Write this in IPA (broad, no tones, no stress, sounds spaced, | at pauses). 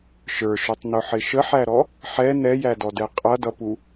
ʃ ə˞ ʃ ʊ tˤ n ʊ ħ ɪ ʃ ə ħ æ ɾ ɔ | ħ ɛ n ɛ j æ d ɔ d ɛ qʼ ʌ d ʌ p u